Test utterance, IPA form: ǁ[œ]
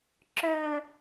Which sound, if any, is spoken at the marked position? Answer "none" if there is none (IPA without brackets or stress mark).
œ